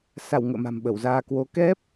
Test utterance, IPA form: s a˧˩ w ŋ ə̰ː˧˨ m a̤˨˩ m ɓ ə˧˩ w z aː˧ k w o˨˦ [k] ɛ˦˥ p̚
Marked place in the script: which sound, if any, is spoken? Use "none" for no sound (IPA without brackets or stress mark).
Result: k